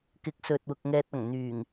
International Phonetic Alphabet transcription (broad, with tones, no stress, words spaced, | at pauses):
kɪ˨˥k̚sɵ˨t̚wʊ˨k̚ ŋɛː˧t̚ɐ˨˩ŋn̪yː˨˩ŋ